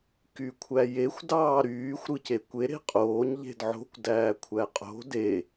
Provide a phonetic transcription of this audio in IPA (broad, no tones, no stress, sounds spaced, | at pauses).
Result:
k y kʷʰ æ j e xʷ d ɑː ɾ yː xʷ ɾ ɯ c e kʷ e ɾ e̤ qʼ oː ɲ ʎ e̤ d ʕ o̤ kʷ d æː kʷʰ æ qʼ o̤ d e